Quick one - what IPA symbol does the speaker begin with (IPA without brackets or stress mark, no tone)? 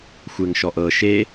xʷ